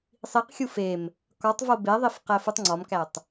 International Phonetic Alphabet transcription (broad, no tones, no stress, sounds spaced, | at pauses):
sˤ i q xʲ u f e m | k ɒ tˤ v o b e ðˤ i f q æ f u tˤ ŋ͡ǀ ɒ m k æ tˤ